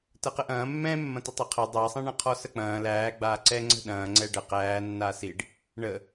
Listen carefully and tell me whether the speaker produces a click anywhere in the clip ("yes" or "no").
yes